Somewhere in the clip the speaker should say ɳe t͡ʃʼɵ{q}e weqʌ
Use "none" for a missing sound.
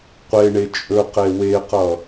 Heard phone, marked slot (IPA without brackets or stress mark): q